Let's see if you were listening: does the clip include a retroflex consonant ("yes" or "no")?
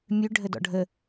yes